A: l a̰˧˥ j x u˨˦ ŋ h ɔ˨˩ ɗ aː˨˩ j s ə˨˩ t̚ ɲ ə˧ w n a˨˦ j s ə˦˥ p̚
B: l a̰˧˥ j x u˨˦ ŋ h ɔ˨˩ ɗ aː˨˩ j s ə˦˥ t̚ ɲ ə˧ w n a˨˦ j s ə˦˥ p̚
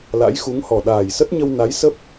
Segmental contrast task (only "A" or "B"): B